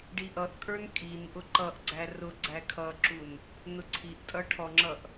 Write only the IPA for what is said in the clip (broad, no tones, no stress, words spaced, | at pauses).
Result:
ɖiʔʌʔkʼə˞n kʼinʔʊ ǃʌʔɡ͡ǀæ rʊ ɡ͡ǀækʰʌǁun | nʊǀʰiʔtʼʌ ʈʰɔŋ͡ǁʌʔ